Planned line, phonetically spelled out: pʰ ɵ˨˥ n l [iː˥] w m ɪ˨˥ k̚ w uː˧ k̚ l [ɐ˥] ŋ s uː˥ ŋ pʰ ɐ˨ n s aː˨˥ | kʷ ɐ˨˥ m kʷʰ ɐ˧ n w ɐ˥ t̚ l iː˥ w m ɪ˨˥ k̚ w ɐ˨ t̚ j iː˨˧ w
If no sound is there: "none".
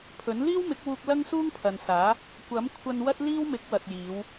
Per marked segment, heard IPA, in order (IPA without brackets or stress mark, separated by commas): iː˥, ɐ˥